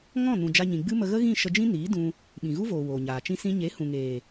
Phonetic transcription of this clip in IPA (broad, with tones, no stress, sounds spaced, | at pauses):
ŋ ɔ̃˦˨ n ũ˨ d͡ʒ a˧ ɲ ĩ˨ ɡ͡b ɨ˦ m ə˧ ɣ ə˦ ɣ ĩ˦˨ ʃ ə˧ d͡ʒ ĩ˦ n iː˨˦ d ũ˧ | ɓ ĩ˨ ɣ u˦ v oː˨ w oː˨ ɲ aː˨ t͡ʃ ĩ˦ s ĩ˦ ɲ e˨˦ h ũ˨ ŋ eː˨